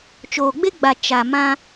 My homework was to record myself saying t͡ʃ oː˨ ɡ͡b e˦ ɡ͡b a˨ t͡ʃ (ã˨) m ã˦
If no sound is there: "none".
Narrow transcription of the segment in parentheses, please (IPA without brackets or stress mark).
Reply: a˨